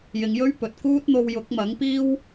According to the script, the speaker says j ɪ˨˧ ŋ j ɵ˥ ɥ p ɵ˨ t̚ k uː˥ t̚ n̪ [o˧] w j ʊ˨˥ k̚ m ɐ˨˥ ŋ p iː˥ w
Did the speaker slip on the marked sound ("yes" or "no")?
no